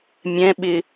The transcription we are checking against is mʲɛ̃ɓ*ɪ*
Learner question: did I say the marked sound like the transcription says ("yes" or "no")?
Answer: yes